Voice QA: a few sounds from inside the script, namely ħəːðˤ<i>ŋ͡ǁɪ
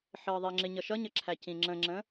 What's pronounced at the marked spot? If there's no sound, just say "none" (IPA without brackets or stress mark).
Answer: i